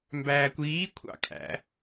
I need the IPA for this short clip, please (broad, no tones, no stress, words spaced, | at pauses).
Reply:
mbæːkʷiː kʷʰɑ̰kʼæ̰